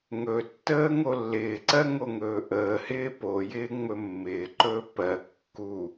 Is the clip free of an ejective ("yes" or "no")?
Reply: yes